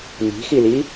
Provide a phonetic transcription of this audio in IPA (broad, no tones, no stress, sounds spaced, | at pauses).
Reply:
n i̤ x i l i